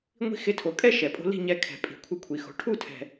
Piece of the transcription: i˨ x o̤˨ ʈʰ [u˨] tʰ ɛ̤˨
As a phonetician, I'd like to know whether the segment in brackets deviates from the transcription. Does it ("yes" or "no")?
yes